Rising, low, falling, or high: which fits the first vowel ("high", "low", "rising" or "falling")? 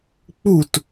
falling